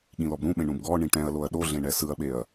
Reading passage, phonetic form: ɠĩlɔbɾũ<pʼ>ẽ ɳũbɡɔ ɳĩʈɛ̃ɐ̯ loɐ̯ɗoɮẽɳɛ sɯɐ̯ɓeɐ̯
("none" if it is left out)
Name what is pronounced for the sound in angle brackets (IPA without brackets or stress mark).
ɓ